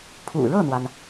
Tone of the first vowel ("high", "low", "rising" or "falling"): low